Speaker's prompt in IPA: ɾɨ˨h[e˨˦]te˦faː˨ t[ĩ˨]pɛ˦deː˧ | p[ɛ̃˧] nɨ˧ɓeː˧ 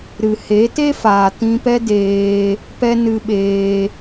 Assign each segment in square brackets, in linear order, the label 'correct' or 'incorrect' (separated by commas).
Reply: correct, incorrect, incorrect